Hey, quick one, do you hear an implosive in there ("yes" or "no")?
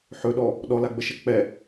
yes